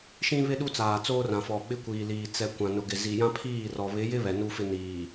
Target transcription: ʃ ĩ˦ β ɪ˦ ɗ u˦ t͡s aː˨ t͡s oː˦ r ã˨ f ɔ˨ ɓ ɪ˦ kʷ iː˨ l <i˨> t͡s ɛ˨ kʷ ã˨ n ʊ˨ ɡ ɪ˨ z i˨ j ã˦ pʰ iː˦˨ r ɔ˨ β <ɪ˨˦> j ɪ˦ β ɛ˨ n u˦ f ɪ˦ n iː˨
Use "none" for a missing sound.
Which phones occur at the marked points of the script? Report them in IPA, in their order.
iː˨, ɪ˨˦

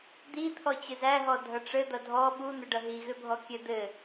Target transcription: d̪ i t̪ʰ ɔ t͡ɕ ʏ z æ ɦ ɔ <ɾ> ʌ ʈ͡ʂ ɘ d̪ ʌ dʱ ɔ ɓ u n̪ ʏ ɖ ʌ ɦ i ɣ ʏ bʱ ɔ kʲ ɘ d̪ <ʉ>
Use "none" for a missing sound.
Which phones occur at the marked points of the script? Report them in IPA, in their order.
dʱ, ɘ

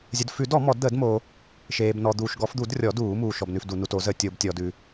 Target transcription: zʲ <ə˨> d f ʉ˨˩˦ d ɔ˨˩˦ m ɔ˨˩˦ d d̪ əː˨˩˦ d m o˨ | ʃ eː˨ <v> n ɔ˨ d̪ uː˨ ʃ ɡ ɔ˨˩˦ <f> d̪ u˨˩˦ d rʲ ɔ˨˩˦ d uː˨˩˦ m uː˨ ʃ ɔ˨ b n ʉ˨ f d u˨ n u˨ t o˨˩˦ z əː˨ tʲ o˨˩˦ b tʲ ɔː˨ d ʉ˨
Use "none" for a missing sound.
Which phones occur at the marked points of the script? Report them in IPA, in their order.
ə˨, b, f

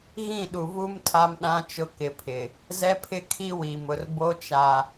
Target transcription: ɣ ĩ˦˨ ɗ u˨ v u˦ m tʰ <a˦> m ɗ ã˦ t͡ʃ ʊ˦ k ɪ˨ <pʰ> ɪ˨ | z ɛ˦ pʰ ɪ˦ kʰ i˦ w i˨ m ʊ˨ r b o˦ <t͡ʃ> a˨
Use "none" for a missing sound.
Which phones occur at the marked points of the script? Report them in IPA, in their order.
a˦, pʰ, t͡ʃ

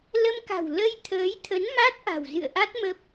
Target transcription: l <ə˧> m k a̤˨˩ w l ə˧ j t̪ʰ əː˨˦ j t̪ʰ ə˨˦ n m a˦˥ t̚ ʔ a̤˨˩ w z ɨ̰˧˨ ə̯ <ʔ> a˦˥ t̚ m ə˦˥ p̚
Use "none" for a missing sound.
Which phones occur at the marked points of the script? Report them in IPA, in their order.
ə˧, ʔ

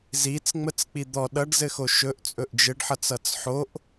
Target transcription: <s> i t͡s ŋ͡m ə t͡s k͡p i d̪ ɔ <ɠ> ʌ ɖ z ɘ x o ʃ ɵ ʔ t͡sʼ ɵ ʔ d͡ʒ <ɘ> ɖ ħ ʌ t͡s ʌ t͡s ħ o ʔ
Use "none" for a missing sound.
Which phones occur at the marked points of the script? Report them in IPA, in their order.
z, ɗ, ɘ

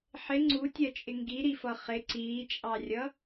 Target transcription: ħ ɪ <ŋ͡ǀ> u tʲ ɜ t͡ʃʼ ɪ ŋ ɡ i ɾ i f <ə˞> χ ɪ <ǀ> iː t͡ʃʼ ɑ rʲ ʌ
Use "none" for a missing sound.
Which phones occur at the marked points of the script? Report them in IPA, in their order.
ŋ͡ǀ, ʌ, ǀ

